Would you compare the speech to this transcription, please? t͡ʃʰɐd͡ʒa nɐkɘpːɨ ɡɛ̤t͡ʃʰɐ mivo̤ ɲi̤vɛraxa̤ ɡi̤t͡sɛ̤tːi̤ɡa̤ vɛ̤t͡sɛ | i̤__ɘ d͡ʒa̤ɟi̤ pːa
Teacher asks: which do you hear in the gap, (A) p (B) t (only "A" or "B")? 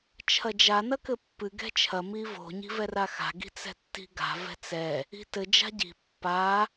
B